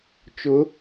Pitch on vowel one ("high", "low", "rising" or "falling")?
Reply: rising